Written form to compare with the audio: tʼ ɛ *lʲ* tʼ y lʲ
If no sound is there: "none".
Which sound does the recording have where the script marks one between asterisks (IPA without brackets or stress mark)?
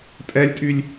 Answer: lʲ